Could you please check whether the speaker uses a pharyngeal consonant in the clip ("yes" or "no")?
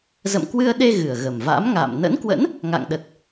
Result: no